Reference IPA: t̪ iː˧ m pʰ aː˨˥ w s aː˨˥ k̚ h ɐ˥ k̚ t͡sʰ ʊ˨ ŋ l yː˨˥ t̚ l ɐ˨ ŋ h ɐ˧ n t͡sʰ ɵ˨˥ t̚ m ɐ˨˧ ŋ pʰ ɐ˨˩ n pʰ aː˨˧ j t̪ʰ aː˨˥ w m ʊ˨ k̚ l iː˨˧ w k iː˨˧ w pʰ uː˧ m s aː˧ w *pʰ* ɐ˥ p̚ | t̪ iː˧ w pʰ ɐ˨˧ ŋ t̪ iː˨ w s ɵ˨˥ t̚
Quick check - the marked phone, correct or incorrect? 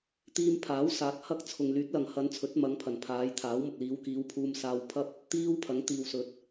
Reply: correct